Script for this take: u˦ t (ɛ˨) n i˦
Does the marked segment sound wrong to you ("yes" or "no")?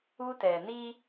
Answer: no